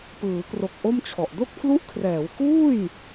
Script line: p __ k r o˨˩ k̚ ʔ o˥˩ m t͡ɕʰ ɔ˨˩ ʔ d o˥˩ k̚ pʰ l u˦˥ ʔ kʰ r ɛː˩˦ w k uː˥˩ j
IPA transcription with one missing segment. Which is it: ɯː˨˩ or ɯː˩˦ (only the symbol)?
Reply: ɯː˩˦